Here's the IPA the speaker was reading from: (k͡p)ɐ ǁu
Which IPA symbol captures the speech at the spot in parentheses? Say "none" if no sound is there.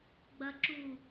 ɡ͡b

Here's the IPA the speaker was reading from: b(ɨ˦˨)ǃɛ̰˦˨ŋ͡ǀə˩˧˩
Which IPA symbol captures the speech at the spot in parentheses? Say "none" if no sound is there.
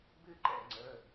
ɨ˦˨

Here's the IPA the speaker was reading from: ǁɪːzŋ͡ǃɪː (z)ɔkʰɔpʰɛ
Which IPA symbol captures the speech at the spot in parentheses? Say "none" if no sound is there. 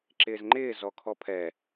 z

